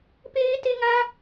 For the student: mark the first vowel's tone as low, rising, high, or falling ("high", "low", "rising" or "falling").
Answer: high